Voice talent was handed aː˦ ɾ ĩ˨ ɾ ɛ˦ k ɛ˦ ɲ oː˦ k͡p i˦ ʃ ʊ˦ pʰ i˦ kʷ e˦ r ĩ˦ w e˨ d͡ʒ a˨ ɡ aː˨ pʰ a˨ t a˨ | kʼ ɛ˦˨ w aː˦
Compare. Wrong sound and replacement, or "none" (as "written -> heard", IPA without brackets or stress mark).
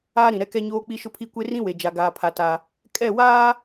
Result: none